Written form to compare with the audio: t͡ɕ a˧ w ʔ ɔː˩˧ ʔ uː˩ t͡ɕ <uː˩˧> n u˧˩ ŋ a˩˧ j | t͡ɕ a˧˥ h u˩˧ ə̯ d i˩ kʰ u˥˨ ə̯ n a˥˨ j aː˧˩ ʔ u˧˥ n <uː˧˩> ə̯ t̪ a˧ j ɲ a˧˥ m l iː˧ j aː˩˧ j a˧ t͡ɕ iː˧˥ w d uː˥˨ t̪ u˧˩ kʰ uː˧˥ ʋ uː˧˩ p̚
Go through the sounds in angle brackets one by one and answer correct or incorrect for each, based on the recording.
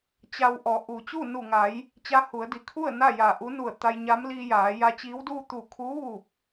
incorrect: uː˥˨, incorrect: u˧˩

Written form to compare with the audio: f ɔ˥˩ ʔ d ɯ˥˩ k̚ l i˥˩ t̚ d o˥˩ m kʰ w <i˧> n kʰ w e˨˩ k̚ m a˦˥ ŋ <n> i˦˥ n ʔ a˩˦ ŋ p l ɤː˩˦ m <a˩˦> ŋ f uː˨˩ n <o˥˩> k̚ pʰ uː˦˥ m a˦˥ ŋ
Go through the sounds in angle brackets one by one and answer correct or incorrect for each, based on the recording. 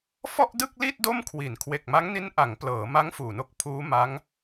incorrect: i˩˦, correct, incorrect: a˦˥, correct

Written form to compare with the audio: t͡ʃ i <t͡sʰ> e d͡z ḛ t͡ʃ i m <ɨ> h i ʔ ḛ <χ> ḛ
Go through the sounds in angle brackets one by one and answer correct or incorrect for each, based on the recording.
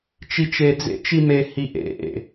incorrect: t͡ʃ, incorrect: e, incorrect: ʔ

